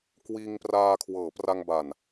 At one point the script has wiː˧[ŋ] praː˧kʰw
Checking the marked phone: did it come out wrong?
no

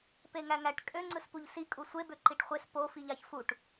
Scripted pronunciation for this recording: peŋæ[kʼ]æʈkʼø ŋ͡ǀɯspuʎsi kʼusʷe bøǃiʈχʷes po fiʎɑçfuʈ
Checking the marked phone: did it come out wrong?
yes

